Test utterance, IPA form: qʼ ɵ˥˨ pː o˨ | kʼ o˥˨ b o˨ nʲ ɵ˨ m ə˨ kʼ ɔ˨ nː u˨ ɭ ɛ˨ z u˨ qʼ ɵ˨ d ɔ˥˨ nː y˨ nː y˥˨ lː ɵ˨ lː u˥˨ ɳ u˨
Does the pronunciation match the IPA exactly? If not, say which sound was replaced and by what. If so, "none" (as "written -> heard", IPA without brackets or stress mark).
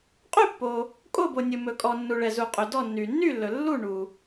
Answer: ə˨ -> ɵ˨